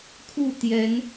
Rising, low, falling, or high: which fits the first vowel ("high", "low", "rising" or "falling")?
falling